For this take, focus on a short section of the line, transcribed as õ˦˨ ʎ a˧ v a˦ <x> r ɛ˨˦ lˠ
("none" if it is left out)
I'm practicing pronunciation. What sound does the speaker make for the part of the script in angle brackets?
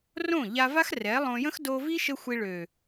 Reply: x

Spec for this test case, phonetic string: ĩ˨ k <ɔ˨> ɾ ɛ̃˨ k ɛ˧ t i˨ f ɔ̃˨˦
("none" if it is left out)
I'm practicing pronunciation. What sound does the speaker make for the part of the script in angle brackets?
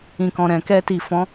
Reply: ɔ̃˨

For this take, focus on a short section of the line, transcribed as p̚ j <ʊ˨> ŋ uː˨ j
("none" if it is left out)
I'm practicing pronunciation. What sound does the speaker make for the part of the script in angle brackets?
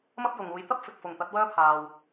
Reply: ʊ˨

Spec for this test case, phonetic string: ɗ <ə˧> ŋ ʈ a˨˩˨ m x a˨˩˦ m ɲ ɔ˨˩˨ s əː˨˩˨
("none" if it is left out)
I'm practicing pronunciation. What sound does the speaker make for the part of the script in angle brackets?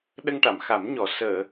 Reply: ə˧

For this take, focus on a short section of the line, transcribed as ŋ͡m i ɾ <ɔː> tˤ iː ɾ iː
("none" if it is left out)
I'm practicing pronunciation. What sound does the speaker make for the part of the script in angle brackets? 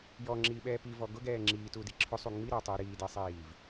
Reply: oː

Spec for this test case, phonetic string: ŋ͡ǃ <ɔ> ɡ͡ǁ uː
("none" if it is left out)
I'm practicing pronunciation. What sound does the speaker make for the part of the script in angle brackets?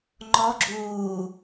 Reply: ɔ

